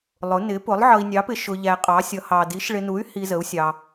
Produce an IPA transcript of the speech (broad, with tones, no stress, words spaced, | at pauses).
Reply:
lˠʊ˨˥ nɪ˨˥pʊ˨˥lˠ ʕʌ˧i̯nʲɑ˨˥pɪ˧ ʃʊ˧ʎæ˧qʼɑ˨˥sʲʌ˨˥ hɑ˧ di˨˥ʃɭɪ˧nu˨˥y̯ hi˧zə˨˥u̯ sʲɑ˧